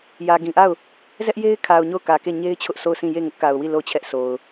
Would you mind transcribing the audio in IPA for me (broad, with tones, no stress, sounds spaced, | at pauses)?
j ä˨ ɡ ĩ˨ ʔ a˦˨ ʊ̯ | z ɛ˦ ʔ j e˦ ɪ̯ kʰ a˨ ʊ̯ ɲ o˦˨ ʊ̯ k ä˨ k e˦˨ ɲ e˦ ɪ̯ t͡ɕʰ ʊ˦ ʔ sʰ o˦˨ ʊ̯ sʰ ĩ˦˨ j e˦˨ ŋ ʊ˦ ʔ k a˨ ʊ̯ w i˦˨ l o˦˨ ʊ̯ t͡ɕʰ ɛ˦ ʔ sʰ o˨ ʊ̯